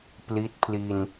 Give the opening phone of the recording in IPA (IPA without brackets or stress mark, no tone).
p